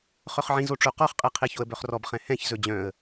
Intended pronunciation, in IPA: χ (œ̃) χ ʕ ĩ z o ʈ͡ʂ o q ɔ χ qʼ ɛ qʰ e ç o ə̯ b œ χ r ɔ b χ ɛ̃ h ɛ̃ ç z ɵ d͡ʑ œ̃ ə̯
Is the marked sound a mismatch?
yes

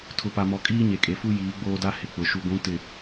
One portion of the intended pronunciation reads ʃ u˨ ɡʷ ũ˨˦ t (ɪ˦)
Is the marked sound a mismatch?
yes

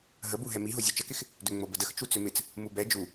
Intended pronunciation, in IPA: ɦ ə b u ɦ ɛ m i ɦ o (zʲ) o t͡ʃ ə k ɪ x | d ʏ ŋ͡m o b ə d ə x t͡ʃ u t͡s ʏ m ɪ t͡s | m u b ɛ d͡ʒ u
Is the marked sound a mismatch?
no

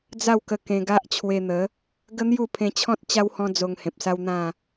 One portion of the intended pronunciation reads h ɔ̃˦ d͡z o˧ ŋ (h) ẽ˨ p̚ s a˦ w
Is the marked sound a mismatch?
no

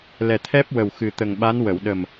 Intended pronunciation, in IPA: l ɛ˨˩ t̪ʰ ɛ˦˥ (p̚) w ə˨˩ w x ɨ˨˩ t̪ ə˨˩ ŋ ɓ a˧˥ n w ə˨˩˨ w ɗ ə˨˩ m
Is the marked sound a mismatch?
no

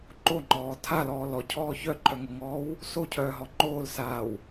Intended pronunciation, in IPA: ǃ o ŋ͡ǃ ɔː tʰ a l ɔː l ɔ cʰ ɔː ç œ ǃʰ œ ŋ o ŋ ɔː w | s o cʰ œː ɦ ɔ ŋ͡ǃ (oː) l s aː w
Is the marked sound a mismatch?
no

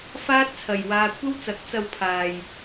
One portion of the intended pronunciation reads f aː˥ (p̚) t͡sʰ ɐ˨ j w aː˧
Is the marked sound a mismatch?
yes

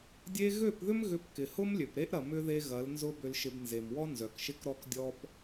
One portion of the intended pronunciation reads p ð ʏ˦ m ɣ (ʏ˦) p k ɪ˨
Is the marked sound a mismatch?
yes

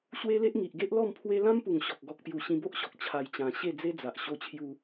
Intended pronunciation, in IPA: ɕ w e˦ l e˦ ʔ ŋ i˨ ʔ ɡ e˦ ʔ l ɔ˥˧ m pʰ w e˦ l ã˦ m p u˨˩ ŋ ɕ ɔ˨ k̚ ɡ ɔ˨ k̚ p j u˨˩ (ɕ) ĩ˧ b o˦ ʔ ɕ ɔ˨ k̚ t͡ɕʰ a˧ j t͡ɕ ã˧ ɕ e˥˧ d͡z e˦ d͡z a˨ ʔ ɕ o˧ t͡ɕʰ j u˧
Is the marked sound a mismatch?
no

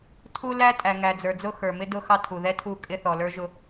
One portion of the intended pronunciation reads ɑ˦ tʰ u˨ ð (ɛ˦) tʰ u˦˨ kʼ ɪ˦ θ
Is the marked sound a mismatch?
no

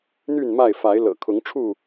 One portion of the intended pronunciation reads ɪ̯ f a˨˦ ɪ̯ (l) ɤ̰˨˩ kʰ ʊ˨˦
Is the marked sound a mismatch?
no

